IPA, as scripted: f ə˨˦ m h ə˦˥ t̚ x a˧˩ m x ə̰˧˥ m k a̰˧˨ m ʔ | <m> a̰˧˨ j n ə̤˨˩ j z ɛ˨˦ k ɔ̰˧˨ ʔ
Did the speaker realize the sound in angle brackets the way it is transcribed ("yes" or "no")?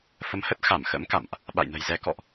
no